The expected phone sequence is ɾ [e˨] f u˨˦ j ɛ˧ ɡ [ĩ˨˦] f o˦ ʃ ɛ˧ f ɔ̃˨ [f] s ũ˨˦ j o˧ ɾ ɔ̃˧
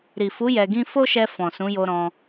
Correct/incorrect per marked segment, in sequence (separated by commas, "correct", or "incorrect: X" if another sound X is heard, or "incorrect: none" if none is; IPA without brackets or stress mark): incorrect: i˨, incorrect: ĩ˦, incorrect: none